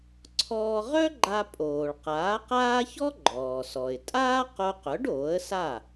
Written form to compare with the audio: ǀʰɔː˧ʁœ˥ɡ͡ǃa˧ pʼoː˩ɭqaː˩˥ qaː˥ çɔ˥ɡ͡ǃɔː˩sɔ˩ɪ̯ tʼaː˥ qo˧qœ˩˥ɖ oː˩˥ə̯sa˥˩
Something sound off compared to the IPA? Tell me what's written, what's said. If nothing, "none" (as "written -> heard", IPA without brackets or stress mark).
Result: none